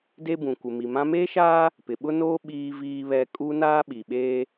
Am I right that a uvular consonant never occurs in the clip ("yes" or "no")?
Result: yes